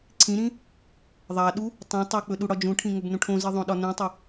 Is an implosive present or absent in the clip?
present